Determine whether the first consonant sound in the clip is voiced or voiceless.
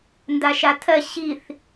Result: voiced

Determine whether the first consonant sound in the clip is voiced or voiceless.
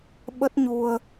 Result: voiced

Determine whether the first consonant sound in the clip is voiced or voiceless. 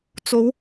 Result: voiceless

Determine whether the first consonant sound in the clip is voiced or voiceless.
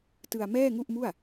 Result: voiceless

